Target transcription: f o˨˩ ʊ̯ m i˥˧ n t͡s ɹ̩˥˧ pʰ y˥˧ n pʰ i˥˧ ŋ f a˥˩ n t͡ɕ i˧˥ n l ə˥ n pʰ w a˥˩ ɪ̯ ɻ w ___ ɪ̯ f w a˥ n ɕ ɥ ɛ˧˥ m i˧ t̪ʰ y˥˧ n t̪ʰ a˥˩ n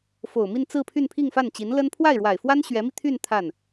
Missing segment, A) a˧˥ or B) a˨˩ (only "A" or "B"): B